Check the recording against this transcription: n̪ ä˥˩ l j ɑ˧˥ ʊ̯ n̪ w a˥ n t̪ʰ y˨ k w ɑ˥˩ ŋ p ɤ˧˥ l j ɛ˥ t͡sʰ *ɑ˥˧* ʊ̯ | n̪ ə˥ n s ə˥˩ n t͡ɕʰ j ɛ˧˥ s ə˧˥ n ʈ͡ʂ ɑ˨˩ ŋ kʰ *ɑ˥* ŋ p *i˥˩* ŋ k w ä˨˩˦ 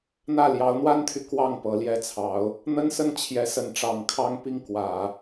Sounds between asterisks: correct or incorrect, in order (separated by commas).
incorrect, correct, correct